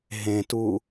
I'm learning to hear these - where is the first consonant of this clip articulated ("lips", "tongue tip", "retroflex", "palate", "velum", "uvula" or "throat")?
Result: throat